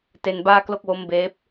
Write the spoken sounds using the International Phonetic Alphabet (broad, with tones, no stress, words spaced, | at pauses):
te˧nbaː˥˩klo˥˩k̚wo˦˥m beː˦˥p̚